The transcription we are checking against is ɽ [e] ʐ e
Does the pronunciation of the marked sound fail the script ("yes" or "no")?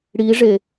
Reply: yes